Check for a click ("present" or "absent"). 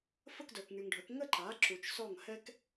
present